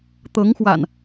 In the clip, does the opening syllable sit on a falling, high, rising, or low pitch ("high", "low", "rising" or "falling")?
rising